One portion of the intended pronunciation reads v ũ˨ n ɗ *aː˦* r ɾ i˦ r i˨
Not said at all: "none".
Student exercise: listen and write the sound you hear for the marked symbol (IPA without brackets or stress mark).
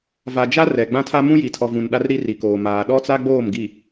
a˦